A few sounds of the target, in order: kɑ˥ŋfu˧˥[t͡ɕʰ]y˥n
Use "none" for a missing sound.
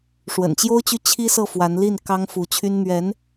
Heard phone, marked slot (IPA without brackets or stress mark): t͡ɕʰ